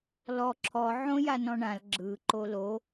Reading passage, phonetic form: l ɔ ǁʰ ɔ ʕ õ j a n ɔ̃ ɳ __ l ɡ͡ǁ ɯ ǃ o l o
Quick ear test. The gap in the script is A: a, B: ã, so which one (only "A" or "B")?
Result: B